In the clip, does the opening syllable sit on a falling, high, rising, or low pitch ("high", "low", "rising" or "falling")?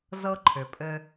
high